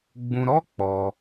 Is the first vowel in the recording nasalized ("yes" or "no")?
yes